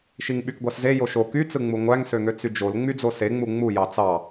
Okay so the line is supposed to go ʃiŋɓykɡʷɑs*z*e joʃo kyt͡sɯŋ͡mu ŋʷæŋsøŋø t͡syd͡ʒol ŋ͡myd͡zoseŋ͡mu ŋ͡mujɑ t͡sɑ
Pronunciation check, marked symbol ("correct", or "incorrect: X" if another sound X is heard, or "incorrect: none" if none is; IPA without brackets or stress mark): correct